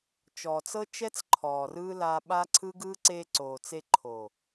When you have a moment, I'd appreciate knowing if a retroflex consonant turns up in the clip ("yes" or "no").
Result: no